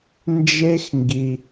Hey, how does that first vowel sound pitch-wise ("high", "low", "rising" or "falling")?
high